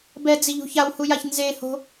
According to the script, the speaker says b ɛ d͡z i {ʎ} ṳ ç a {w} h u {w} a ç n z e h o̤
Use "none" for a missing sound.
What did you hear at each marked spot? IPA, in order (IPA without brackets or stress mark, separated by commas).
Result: ʎ, w, j